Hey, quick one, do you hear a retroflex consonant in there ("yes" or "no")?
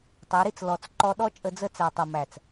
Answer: no